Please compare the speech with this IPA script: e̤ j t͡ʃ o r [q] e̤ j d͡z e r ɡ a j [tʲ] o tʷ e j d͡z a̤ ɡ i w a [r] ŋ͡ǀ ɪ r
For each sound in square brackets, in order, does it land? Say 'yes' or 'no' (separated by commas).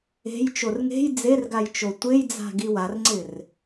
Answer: no, no, yes